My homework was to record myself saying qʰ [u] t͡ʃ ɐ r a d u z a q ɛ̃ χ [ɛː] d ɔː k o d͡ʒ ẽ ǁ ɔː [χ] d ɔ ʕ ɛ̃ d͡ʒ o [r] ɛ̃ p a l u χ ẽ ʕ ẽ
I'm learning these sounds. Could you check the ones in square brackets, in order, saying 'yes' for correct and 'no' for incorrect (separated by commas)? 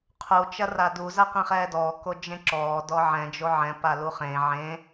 yes, yes, no, no